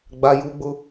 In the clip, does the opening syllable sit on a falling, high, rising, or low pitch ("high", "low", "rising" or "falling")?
high